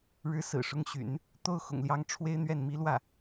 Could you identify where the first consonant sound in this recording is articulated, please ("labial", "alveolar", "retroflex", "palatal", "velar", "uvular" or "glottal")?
retroflex